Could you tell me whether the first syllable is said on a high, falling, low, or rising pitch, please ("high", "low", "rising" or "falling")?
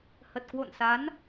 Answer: low